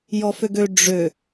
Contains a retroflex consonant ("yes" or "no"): yes